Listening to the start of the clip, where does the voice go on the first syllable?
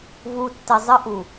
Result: low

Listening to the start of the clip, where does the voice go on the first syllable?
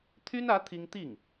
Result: high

